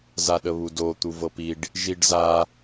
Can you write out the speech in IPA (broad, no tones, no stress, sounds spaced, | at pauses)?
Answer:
z a ɗ ə β u d o t̪ u v ɤ p i ɖ | ʒ i ɖ z a